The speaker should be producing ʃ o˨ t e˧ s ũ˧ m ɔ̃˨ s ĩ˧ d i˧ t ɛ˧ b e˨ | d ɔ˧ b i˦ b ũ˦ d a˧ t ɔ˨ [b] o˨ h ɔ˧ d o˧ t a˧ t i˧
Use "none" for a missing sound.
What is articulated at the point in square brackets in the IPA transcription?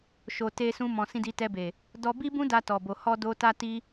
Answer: b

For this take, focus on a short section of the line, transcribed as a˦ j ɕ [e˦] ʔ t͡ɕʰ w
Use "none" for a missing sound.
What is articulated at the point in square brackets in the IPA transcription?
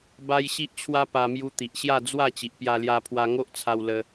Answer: i˦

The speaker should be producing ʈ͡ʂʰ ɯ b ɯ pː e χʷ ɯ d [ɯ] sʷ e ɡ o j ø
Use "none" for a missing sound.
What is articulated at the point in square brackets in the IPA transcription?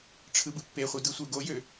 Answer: ɯ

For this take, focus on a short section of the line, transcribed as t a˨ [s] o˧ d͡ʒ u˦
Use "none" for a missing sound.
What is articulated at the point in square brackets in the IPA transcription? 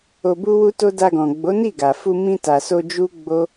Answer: s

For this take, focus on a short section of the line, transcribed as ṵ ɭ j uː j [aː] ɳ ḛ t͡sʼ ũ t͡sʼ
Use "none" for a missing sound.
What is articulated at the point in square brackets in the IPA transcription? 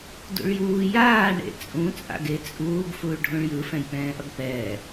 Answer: aː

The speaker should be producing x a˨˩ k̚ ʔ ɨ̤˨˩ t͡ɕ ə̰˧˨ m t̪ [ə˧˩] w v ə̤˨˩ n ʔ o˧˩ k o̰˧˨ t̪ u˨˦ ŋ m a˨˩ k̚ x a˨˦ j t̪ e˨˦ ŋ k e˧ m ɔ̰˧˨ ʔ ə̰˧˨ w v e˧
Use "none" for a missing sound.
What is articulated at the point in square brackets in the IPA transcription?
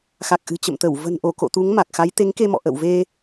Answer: ə˧˩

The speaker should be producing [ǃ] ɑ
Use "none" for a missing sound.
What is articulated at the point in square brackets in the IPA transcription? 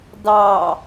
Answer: d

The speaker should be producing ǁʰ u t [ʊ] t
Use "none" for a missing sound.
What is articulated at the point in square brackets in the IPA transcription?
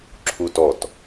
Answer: ɔ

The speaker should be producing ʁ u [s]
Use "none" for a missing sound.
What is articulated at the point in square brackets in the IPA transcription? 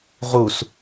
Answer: s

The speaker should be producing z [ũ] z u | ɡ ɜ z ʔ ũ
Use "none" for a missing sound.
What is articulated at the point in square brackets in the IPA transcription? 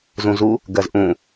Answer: ũ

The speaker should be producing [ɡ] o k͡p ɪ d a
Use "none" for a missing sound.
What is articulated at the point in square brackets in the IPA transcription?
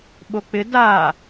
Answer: ɓ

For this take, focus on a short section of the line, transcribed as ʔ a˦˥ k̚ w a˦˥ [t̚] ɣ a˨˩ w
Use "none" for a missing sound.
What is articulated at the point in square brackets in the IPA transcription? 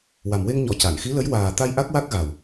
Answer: k̚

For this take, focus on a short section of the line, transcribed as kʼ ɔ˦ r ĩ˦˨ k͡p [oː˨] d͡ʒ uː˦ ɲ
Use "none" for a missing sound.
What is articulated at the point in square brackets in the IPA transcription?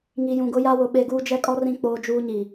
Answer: oː˦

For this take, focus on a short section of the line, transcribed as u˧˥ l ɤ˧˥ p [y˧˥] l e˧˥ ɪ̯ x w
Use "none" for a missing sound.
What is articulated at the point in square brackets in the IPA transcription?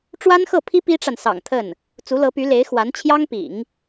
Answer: y˧˥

